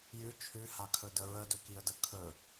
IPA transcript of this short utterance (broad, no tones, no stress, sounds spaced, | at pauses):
j ʉ t͡ʃʰ ʉ h a kʰ ɵ d ə ɹ ə d ɵ k i ə̯ d ə kʰ ɵ